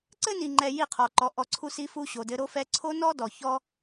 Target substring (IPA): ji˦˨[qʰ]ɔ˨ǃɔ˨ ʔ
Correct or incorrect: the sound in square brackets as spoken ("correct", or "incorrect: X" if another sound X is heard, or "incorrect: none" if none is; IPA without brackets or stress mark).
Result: correct